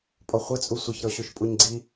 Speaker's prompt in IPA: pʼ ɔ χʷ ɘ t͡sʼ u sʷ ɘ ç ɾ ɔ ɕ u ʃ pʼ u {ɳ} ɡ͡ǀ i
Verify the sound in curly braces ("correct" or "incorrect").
incorrect